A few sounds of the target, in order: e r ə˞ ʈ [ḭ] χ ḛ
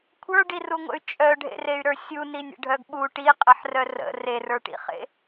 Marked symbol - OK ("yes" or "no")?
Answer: yes